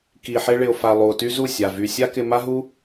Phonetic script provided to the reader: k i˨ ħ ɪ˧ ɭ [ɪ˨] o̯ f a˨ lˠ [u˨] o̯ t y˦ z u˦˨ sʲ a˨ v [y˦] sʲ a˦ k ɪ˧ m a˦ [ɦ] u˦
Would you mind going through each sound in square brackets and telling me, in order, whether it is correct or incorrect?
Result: correct, correct, incorrect, correct

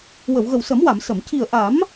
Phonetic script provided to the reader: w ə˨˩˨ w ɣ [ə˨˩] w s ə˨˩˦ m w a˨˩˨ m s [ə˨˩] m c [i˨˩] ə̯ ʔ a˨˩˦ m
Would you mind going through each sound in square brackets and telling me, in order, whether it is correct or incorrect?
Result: correct, incorrect, correct

